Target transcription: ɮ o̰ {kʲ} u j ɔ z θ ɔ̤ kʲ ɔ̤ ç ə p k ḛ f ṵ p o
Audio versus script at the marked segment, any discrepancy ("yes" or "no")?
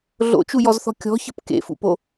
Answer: yes